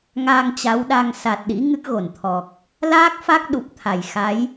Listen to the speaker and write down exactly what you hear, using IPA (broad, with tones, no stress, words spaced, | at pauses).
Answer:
ŋa˧ŋt͡ɕa˨˦wɗa˧ŋ sa˨˩t̚ɗḭ˧˥ ŋɨ˦˥k̚ɣo˧˩nt̪ʰɔ˨˩k̚ | laː˦˥k̚fa˦˥k̚ɗu˨˩p̚ t̪ʰa˧˩j xa˨˦j